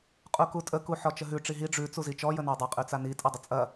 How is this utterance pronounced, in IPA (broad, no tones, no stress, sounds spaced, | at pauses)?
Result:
qʼ u k u tʼ ə k u ħ ɔ t͡ʃ ə ɦ ʉ ʈ͡ʂ i ɦ i ɖ͡ʐ ʉ t͡s u z i t͡ʃ ɔ j ə n a dˤ ɛ qʼ ʉ t͡s a n i tʼ ɐ dˤ ə t͡sʼ ɐ